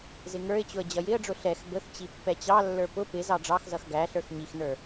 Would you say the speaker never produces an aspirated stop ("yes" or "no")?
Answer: yes